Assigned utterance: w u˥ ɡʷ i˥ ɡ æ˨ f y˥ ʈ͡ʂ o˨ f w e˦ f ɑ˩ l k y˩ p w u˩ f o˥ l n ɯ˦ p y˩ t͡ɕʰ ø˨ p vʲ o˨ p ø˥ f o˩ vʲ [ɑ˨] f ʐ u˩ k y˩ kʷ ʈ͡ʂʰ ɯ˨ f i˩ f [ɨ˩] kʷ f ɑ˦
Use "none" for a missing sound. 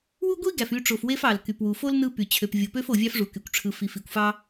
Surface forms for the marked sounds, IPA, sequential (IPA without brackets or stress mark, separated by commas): ɑ˥, i˩